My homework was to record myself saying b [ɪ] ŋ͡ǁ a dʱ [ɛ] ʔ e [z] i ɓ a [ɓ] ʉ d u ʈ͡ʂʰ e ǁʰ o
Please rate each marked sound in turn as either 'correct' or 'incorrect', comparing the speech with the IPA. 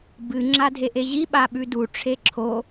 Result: incorrect: ɨ, incorrect: e, incorrect: ʑ, correct

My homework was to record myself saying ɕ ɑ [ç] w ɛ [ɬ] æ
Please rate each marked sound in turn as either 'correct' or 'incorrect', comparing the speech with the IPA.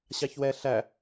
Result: correct, correct

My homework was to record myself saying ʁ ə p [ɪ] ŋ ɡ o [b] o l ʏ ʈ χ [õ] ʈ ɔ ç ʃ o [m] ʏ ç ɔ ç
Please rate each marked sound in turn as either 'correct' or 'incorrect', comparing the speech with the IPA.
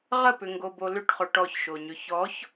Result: incorrect: ʏ, correct, incorrect: o, incorrect: ɲ

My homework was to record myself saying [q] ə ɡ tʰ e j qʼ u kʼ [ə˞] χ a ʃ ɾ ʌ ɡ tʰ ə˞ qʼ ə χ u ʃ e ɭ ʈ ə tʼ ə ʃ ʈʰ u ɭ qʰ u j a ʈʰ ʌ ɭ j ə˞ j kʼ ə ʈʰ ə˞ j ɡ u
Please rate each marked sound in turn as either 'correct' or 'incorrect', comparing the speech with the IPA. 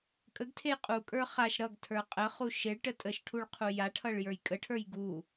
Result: incorrect: kʼ, correct

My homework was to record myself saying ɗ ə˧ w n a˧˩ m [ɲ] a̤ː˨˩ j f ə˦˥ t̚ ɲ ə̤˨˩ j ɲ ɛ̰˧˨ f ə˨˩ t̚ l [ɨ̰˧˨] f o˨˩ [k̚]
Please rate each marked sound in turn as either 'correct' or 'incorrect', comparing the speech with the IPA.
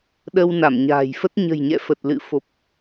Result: correct, correct, incorrect: p̚

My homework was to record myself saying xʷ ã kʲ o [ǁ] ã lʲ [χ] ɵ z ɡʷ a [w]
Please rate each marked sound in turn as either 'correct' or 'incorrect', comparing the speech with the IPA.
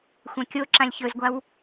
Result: correct, incorrect: ç, correct

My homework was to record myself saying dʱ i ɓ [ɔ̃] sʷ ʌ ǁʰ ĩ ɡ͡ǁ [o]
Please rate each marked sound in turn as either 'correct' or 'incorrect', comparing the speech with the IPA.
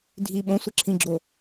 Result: incorrect: õ, correct

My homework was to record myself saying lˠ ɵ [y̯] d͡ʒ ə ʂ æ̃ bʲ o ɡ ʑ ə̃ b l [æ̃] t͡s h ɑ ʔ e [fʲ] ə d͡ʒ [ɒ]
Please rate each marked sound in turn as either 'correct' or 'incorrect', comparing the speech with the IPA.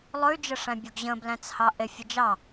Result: correct, correct, correct, incorrect: ɑ

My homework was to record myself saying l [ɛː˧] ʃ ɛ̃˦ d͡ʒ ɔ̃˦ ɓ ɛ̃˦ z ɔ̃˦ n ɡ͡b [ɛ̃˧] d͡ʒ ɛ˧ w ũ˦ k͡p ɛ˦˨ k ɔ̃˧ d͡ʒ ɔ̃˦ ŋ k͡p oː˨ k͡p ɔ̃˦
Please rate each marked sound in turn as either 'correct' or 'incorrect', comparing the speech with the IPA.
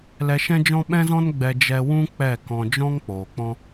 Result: incorrect: ɛ˧, incorrect: ɛ˧

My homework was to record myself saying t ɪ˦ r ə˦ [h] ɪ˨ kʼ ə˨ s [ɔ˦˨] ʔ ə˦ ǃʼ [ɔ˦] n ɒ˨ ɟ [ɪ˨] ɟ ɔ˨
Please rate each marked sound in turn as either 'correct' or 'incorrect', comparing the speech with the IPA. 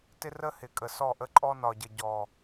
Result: correct, correct, correct, incorrect: ə˨

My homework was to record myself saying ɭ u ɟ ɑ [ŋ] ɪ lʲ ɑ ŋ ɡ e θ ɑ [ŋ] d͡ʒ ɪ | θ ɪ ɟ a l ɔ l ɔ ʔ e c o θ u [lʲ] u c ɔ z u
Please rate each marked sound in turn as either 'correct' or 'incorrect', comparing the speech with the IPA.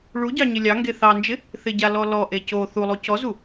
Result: incorrect: ɲ, incorrect: n, incorrect: lˠ

